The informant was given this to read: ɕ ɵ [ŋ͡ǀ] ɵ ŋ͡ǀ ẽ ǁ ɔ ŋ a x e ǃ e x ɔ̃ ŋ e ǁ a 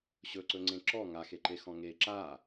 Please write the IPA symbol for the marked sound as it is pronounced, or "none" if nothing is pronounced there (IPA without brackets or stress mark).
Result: ǀ